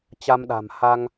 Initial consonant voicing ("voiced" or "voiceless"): voiceless